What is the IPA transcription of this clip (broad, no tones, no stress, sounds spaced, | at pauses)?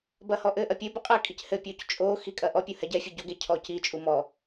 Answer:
b ɐ h ɔ ʔ ɘ ʔ ɐ pʲ ɘ b ɘ qʼ ɘ kʼ i c h ɘ pʲ o c t͡ʃʼ o x i kʼ ɐ ʔ ɔ pʲ u h ɛ ɟ ɛ fʲ ɨ ɟ o ɡ e cʰ ɔ c i t͡ʃʼ u m ɔ